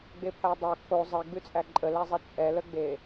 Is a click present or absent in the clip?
present